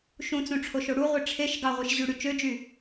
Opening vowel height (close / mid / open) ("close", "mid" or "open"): close